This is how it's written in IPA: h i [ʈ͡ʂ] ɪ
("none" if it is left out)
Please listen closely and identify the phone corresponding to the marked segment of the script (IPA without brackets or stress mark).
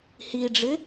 ɖ͡ʐ